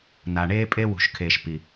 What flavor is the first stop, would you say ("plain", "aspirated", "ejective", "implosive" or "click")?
ejective